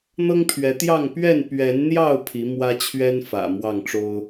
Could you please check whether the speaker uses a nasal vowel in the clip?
no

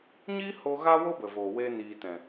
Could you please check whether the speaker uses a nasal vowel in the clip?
yes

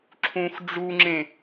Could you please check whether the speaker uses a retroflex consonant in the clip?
yes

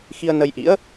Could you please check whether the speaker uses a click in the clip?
no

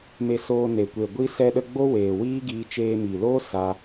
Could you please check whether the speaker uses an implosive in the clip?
yes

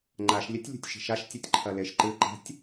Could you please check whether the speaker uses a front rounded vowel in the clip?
no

